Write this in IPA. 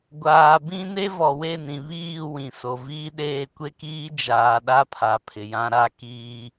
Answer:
ɡʷ aː˨ b ĩ˦ n e˦ v ɔ˨ w e˦˨ n ĩ˨ β iː˦˨ w ĩ˨ s o˨ v iː˦ ɗ eː˦ kʷ e˦ k iː˦ d͡ʒ aː˨ ɗ a˦ pʰ a˨˦ pʰ ɪ˨ j ã˦ ɾ a˦ k iː˦

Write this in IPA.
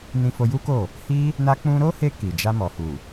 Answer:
n ĩ˧ f o˧ j u˦ k o˦˨ | h i˦ | n a˧ k͡p ũ˧ ɾ o˦ h e˧ k i˨ d͡ʒ a˧ m ɔ˨ h u˨

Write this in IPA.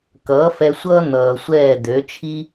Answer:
k ʌː˩˥ f ɛ˧ sʷ ʌː˥ n̪ ʌː˩ sʷ ɛː˥˩ d̪ ø˩˥ t͡ʃʰ i˥

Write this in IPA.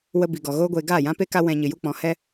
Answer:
w ə˧ b i˨ ɡ ɔ˨ ɣ oː˧ ɡʷ eː˨ ɡ aː˦˨ j ã˦ p e˦ k a˦ w ɛ̃˧ ɲ ɨ˨ j u˦ k͡p ɔ̃˨˦ h ɛ˦

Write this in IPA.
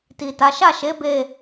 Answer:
t i˨ t a˨˦ ʃ a˦˨ ʃ e˨˦ b e˦˨

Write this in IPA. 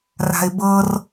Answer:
r a̤ ɪ̯ b ɤ r

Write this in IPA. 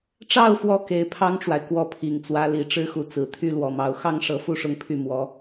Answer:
ʈ͡ʂ ɑ˥˩ ʊ̯ f w ɔ˧˥ k e˧˥ ɪ̯ pʰ ɑ˥ ŋ ʈ͡ʂ w a˨ ɪ̯ k w ɔ˥˩ pʰ i˨˩ ŋ t͡s w ä˧˥ l i˨˩ ʈ͡ʂ ɻ̩˥ x u˧˥ t͡s ɹ̩˨˩ t̪ʰ y˥ l w ɔ˨˩ m ɑ˧˥ ʊ̯ x ɑ˥ ŋ ʂ ɤ˧˥ f u˥˧ ʂ ʊ˥˧ ŋ pʰ y˥˩ m w ɔ˧˥

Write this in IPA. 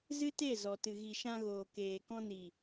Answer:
z ɨ˦ t e˦˨ z ɔ˨ t ɨ˨ ɣ i˨ ʃ ã˧ ɣ oː˨ k eː˨ k ɔ̃˧ n i˨

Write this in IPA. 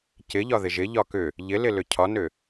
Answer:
c ɪ ʎ ɒ ð ɪ ʒ ɪ ʎ ɒ k ʏ | ʎ ɪ l ɪ l ʏ cʰ ɒ n ʏ

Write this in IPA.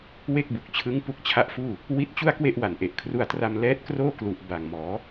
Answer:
w e˥˩ k̚ b u˨˩ k̚ t͡ɕʰ ɯ˦˥ ŋ p u˦˥ k̚ t͡ɕʰ a˦˥ ʔ f uː˥˩ | w i˦˥ t̚ t͡ɕ u˥˩ a̯ k w e˥˩ ʔ w a˨˩ n ʔ e˨˩ ʔ kʰ r u˧ a̯ t r a˧ m l ɛː˦˥ t̚ k r oː˥˩ k l u˨˩ ʔ b a˨˩ ŋ m ɔː˩˦

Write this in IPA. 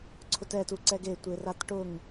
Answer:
ǀʰ ʊ t ɛ t u ǀ ɛ ɡ e tʷ e r a t ʈ ʊ ŋ

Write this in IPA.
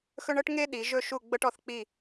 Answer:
x ɵ˧ ɳ ɤ˥˧ ʈ ŋ e˧ ɗ i˩˧ ʒ ɵ˧˩ ʃ u˧˩ ɡ͡b ɤ˧ ʈ ɔ˩˧ θ k͡p i˧˩

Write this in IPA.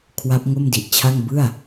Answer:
kʰ w a˦˥ p̚ ŋ o˥˩ m d i˨˩ ʔ t͡ɕʰ a˥˩ ŋ b ɯ˥˩ a̯

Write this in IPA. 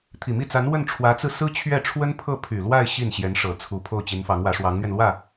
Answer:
t̪ʰ i˨˩ m i˥˩ t͡s a˧˥ n w ə˥˩ n ʈ͡ʂʰ w ä˧˥ t͡s ɹ̩˧ s ɹ̩˥ t͡ɕʰ ɥ ɛ˥˩ ʈ͡ʂʰ w ə˥ n pʰ ɤ˥˩ pʰ y˨˩ l w a˥˧ ɪ̯ ɕ i˥˩ n ɕ j ɛ˧˥ n ʂ ɤ˨˩ t͡sʰ u˧˥ pʰ o˥˩ ʊ̯ t͡ɕ i˧˥ n f ɑ˧˥ ŋ w ä˧˥ ʂ w ɑ˧˥ ŋ n̪ ɥ ɛ˧ n l w ä˥˩

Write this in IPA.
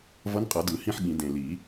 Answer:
v ʌ˧˥ n qʼ ʌ˨˩˦ d ɯ˨˩˦ h ĩ˥˧ ħ ɠ ĩ˨˩˦ d ẽ˨˩ l i˨˩˦

